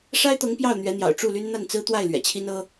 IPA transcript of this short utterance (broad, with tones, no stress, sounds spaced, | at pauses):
ʂ a˥ ɪ̯ t̪ ɤ˧˥ ŋ p j ɑ˥˩ ʊ̯ n̪ ɥ ɛ˧˥ n̪ j ɑ̰˨˩ ʊ̯ ʈ͡ʂ u˥˩ l y˥ n n̪ a˥˩ n t͡s ɹ̩˥ t̪ w a˥˩ ɪ̯ l ɥ ɛ̰˨˩ t͡ɕʰ i˥ n ɤ˥